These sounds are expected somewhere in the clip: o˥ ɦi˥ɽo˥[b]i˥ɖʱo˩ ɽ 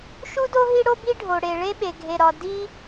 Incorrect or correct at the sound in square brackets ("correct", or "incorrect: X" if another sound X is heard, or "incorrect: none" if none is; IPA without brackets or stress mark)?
correct